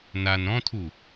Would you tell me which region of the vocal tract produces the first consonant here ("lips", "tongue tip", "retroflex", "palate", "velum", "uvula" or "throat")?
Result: tongue tip